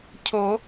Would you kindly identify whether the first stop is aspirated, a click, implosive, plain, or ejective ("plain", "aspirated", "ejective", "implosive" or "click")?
aspirated